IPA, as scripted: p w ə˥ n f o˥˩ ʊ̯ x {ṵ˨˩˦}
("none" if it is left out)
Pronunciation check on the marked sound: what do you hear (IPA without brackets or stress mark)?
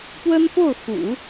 ṵ˨˩˦